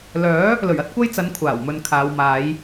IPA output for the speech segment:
lœː˨˥ | lɵ˨˩ɥɐ˥t̚ kʷɐ˥jt͡sɐ˨˥n kʷʰaː˨˩wmɵ˧nkʰaː˨˧w maː˨˧j

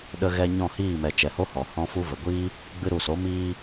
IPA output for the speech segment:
ɗə˧ɣɛ˧ ɲɔ̃˦˨hiː˦˨mɛ˨ t͡ʃɛ˨ho˦hɔ˨ hɔ̃˦fu˦ və˨ɡʷiː˦ | ɡ͡bɨ˧ɾu˨so˨˦ miː˧

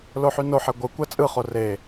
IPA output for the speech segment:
loħynoħe ɡʷɯ kʷæt͡sʼɯχo re

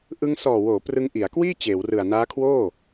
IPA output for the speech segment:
ʔɯ˧ŋ sɔː˨˩woː˩˦ prɯ˧ŋʔi˩˦a̯kwiː˥˩ t͡ɕeː˩˦wrɯ˨˩a̯ naː˦˥kʰwoː˥˩

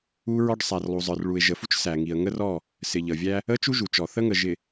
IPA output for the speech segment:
u˦ɹɔ˦ɖ sˤæ˨rlˠu˨zˤə˞˨r ɭu˨ɪ̯ʒə˨fu˦t͡ʃ sæ˨ŋi˨ə̯ ŋə˦rɔ˦˨ | sɪ˨ʎə˨vʲæ˦ | ə˦t͡ʃu˦ʒu˨t͡ʃɔ˨ θə˦ŋə˨ ʒɪ˨

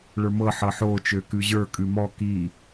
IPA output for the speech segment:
ɭə˞mɤ ħɤħo t͡ʃøkʉʑə˞ kʼʉmɔ ki

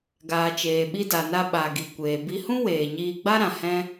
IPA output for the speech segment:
ɡaː˨ t͡ʃeː˨ɓi˧da˨na˧ ɓa˨ɡi˨ kʷeː˨bi˧hũ˦ weː˨ɲiː˧ ɡ͡ba˦ɾã˨ hɛ̃˦

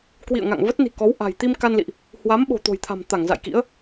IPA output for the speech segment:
kwḭ˧˨ə̯ŋa̰˧˨ŋ və˦˥t̚ni̤˨˩ kɔ˨˦wʔa̤˨˩j t̪i˧mka˧nlḭ˧˨ʔ | hwa˨˦mɓo̤˨˩ t̪o̤˨˩jt̪ʰa̤˨˩mt̪a˧˩ŋ za̰˧˨jkḭ˧˥ə̯

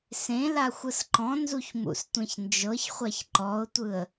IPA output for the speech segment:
sẽ laxʷɯsǃɔ̃ nzuçmṵstʷẽçnd͡ʒɤç χʷaçǃɔʊ̯tʷɯə̯

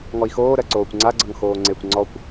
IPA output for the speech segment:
ŋɔi̯xoː ɾɜǀoːkʷŋ͡ǀaɡ͡ǀʌŋ xoːŋ͡ǀekʷ ŋ͡ǀɔkʷ

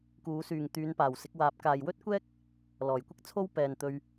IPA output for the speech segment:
kuː˨˥syː˨ŋ t̪yː˨˧npaː˨˩w sɪ˨˥k̚waː˨˥p̚ kaː˨jwɵ˥t̚kʷɛː˥k̚ | lɔː˨˩jkʷɪ˥k̚t͡sʰo˥w pɛː˨nt̪ɵ˧ɥ

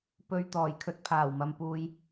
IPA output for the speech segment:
pɵ˧ɥt̪ɔː˨˩jkʰɵ˧t̚ pʰaː˨˩wmɐ˨mpuː˨j

